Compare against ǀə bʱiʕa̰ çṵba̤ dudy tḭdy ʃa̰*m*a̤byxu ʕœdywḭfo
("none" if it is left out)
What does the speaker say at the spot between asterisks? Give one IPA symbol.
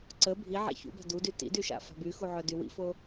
f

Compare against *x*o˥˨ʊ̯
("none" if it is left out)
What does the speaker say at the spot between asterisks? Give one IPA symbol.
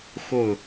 x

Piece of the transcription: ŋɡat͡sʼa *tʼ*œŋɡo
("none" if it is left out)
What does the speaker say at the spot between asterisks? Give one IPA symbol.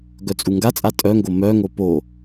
tʼ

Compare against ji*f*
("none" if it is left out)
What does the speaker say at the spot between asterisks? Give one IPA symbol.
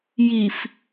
f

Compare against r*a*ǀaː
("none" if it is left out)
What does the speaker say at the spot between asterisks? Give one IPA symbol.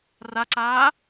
a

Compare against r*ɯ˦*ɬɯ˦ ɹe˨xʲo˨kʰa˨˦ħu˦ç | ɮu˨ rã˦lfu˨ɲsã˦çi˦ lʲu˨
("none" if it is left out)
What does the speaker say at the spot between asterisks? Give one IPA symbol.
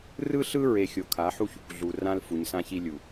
ɯ˦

